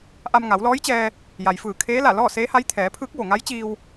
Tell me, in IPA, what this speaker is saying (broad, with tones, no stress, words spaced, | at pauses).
ʔa˧mŋa˩˧wlɔː˧˥jt͡ɕɛː˧ | ja˩jfɯː˧˩kʰeː˧˥la˧˩ lɔː˥˨seː˧˥ha˧˥j t̪ʰɛː˩˧ pʰɯː˧˥k̚ʋo˩ŋa˧˥jt͡ɕiː˧w